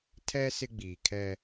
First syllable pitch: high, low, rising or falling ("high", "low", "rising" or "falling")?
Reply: high